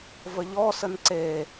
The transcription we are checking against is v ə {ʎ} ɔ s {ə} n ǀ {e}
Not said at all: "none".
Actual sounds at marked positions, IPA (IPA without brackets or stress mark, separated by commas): ʎ, ə, e